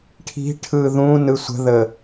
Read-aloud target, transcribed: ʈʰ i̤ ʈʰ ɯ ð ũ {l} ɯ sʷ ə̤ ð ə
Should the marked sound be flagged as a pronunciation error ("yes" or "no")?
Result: yes